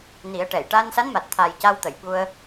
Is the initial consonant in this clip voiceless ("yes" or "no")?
no